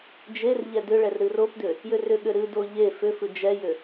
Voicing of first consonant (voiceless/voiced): voiced